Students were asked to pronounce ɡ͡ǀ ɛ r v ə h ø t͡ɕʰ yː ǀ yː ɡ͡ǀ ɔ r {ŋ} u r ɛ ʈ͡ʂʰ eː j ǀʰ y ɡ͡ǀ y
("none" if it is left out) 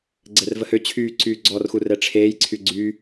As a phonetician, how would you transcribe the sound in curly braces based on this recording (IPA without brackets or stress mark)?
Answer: x